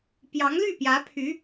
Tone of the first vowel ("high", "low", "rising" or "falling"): rising